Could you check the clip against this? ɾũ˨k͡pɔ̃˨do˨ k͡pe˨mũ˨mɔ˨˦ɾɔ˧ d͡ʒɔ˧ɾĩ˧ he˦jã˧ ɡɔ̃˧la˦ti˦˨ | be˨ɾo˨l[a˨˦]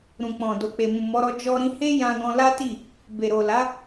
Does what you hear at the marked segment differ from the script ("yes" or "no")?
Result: no